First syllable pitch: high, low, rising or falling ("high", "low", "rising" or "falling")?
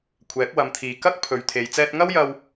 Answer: rising